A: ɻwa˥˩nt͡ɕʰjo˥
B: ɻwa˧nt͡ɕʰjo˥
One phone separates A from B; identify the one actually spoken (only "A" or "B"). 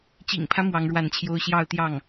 A